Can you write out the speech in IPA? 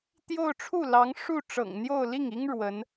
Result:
t̪ j o˥˧ ʊ̯ ʈ͡ʂʰ u˥˩ l ɑ˧˥ ŋ ʂ u˥˩ ʈ͡ʂ ɤ̰˨˩ ŋ n̪ j o˥˧ ʊ̯ l i˥˩ ŋ i˥ ŋ ɻ w ə˧˥ n

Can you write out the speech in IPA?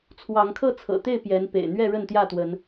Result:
t͡sʰ w ɑ˨˦ ŋ kʰ ɤ˥˨ t͡sʰ ɤ̰˨˩ t̪ e˥˨ ɪ̯ p j ɛ˨˦ n p ḛ˨˩ ɪ̯ n̪ ɥ ɛ˥˨ ɻ ə˥˨ n t̪ j ä˥˨ t̪ w ə˨˦ n

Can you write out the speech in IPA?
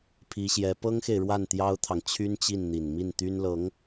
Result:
pʰ i˧˥ ɕ j ɛ˧˥ p ɤ˥ ŋ x e˨ ɪ̯ ɻ w a˥˩ n t̪ j ɑ˥ ʊ̯ t̪ʰ ɑ˨ ŋ t͡ɕʰ y˥ n t͡ɕ i˥˩ n n̪ i˨˩ n m i˥˩ n t̪ y˥ n l ɤ˧˥ ŋ

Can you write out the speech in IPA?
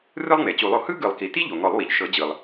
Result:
r ɯ˥ lˠ ŋ͡m e˩ t͡ɕ u˨˩˦ lˠ o˩ h ɯ˥ ɡ ɯ˨˩˦ lˠ k i˩ t i˥ ʎ o˩ ŋ ɔ˨˩˦ lˠ w i˩ ʎ ʃ ɤ˨˩˦ d͡ʑ ɯ˩ lˠ

